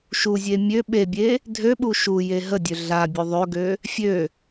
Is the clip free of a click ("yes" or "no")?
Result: yes